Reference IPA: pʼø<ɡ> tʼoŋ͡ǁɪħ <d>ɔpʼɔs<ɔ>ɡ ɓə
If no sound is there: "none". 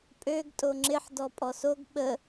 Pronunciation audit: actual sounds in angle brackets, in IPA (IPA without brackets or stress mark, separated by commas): ɡ, d, o